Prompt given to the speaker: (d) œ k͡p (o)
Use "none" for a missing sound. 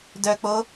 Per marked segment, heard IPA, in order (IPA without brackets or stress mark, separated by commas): d, o